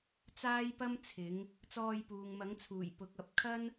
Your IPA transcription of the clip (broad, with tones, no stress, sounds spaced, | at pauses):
t͡s aː˥ j p ɐ˥ m t͡sʰ ɪ˨˥ ŋ | t͡s ɔː˧ j p uː˨ ŋ m ɐ˨˥ ŋ t͡sʰ uː˨˩ j p ʊ˨˥ k̚ ɐ˨˥ p̚ kʰ ɐ˥ n